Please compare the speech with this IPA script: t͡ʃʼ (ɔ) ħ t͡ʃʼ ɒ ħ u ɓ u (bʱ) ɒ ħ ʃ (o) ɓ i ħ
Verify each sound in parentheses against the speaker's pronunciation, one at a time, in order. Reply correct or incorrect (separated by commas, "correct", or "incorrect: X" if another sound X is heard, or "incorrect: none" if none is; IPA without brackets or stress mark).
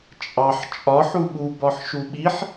incorrect: ɑ, incorrect: b, incorrect: u